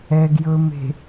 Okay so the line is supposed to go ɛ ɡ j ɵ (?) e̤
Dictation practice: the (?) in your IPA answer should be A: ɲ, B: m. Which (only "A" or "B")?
B